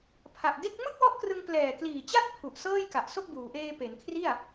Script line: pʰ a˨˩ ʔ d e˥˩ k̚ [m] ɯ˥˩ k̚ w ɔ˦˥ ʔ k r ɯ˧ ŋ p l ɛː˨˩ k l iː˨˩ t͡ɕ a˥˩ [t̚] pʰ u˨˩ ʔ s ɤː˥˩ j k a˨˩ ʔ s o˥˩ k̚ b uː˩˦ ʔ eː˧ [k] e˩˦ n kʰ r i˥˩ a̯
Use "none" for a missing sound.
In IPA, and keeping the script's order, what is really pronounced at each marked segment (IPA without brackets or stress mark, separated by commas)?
m, t̚, p